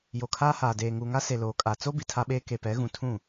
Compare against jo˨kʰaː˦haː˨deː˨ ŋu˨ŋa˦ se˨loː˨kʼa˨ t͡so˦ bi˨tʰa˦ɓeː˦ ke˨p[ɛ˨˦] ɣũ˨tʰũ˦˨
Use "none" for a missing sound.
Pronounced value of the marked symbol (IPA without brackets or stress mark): ɛ˨˦